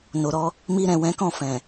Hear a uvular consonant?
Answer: no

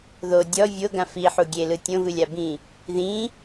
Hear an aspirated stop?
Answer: no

